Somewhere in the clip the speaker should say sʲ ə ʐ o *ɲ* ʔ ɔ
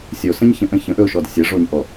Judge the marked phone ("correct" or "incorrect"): correct